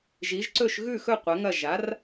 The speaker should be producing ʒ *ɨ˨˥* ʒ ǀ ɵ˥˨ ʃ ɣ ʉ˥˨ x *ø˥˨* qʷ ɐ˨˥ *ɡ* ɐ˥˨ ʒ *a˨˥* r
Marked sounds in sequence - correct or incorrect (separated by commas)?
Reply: incorrect, incorrect, incorrect, correct